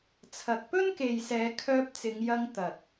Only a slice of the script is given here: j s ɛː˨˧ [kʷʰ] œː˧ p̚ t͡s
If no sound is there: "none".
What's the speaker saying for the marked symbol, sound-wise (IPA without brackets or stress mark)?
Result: kʰ